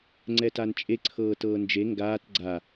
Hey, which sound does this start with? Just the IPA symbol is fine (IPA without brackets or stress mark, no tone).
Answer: ŋ͡ǀ